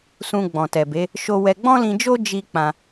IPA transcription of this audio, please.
s ũ˧ ɡ͡b ɔ̃˨ t ɛ˨ b e˨˦ | ʃ o˦ w ɛ˦ ɡ͡b ɔ̃˦ l ĩ˧ d͡ʒ o˦ d͡ʒ i˦ k͡p ã˧

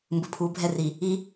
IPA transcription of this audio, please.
m b ɯ pʰ u bʱ ɛ r i | i

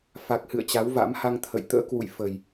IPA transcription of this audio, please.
f a˨˩ k̚ h ɨ̰˧˨ ə̯ t͡ɕ a˨˦ w v a̰˧˥ m h a˧ ŋ t̪ʰ ə̰˧˨ j t̪ ə̰ː˧˥ k w ṵ˧˨ j f ə˨˩ j

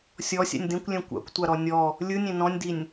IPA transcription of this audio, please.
sʲ ɔ sʲ a̰ nʲ d ẽ kʷ lʲ ɛ̃ kʷ a̰ kʷ tʷ a ɾ ɔ nʲ ɔ | lʲ ɯ nʲ ẽ n ɔ̃ nʲ d i nʲ

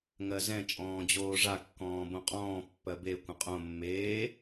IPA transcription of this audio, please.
ŋ ɜ z ɛ̃ t͡ʃʼ ɔ̃ː d͡ʑ oː ʐ a kː ɔ̃ː b õ qʼ ɔ̃ː pː ɜ b e kʷ ə̃ qʼ õ mː eː

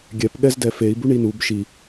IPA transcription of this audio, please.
ɡʲ ɛ p ɠ ɛ z d ɛ f e i̯ b u ɳ i n u b ʃ i

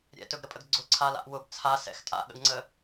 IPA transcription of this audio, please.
ɾʲ ɛ̰ t ɵ ɡ ɾ ə pʼ ə ɡ ɡ͡ǀ ʊ ǀʰ a l a̰ ʔ w ʊ b t͡sʰ a s ɛ̰ x tʼ a̰ ɠ ə̰ ɡ ŋ͡ǀ ə

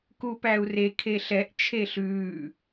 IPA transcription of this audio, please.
k u p æ u̯ r e kʰ e ɬ ɛ ʔ t͡ʃʰ e ɬ ʉː

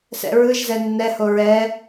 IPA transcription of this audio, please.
s ɛ̰ ɹ ɯ ʒ z ɛ nː ɛ h o ɹ ɛ

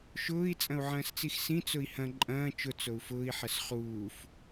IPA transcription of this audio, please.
ʃ ʊː i̯ t͡sʼ ɐ̃ u̯ ʕ ɐ̃ː s t͡s i x s ĩ t͡s ʊ i̯ h ɐ̃ ǃʼ ɐ̃ː t͡ʃ ʊ t͡s o u̯ f ʊː i̯ ħ ɐ s χ uː f

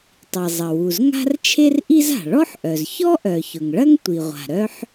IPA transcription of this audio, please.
tˤ i˩ zˤ ɐ˩ w u˩ z ŋ a̤˥ r t͡ʃʰ e˥ r ʔ i˥ z a̤˩ ɭ ɔ˥ ħ ʔ œ˩ z ç ɔ˥ ʔ œ˩ ç ʊ˩ ŋ ɭ ɐ˥ ŋ tʷ i˩ ʁʷ a̤˩ ɾ œ˥ ħ

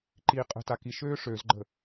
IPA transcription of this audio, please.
ǃ iː qʼ ə̤ t a k i ʃ øː ʂ ø z ɡ͡ǃ ə̤

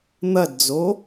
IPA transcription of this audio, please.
n̪ ɐ d d͡z o

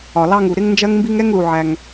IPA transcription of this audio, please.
ɒ˩ l ɑ˥ ŋ u˩ ɾ ɪ˥ ŋ n d͡ʒ ɜ˥ ŋ m b i˥ ŋ ɛ˥ ŋ l u˩ ʕ æ˩ ŋ

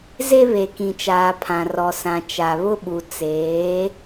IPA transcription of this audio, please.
z e˦ β e˨ k ĩ˨ t͡ʃ aː˨ pʰ ã˨ r ɔ˨ s ã˨ t͡ʃ a˨ β ʊ˦ ɓ u˨ t͡s eː˨˦

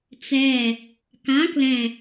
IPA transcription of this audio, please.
t͡s ɛ | k ã k l ɛ̃

